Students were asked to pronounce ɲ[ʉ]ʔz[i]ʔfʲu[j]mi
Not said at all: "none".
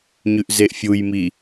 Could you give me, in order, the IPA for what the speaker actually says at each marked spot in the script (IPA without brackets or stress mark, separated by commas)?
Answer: ʉ, e, j